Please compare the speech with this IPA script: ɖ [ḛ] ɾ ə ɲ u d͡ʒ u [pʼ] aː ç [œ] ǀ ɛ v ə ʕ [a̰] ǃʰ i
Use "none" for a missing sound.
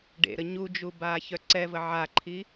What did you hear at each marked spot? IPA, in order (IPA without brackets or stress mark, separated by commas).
ḛ, b, œ, a